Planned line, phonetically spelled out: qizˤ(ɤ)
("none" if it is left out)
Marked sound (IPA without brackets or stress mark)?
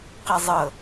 ɤ